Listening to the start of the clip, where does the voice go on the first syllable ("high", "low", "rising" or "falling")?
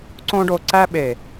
high